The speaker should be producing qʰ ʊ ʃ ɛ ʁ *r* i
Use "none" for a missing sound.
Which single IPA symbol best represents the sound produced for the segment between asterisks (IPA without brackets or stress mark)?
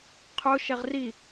r